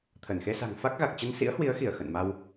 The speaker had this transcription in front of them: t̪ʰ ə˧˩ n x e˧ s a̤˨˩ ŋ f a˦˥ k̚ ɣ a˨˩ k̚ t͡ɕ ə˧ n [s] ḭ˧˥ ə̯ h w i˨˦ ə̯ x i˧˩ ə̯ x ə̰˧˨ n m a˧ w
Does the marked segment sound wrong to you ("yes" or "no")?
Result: no